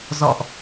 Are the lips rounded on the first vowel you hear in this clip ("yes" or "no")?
yes